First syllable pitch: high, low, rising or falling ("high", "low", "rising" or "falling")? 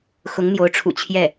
rising